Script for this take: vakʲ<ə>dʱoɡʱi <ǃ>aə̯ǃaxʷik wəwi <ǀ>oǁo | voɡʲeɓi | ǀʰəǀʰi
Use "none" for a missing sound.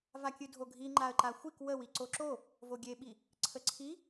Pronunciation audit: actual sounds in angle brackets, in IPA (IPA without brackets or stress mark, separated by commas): ɨ, ŋ͡ǃ, ǀ